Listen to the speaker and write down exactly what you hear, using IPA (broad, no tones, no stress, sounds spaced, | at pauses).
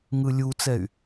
ŋ ɯ lʲ u t͡s ɛ y̯